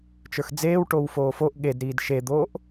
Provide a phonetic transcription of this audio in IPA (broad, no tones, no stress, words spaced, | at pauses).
t͡ʃə˞xd͡zeːw ʈowfoːfoʔ ɠedɾiːd ʃed̪oːʔ